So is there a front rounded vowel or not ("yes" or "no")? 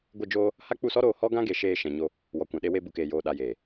no